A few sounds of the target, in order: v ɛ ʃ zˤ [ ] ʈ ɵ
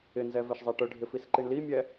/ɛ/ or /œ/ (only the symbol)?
ɛ